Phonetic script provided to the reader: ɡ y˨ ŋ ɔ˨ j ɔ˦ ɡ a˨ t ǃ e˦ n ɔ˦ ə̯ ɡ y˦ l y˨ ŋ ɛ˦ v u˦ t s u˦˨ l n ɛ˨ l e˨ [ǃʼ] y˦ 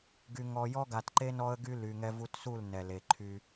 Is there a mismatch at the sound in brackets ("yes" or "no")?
yes